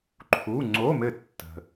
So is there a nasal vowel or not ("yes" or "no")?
no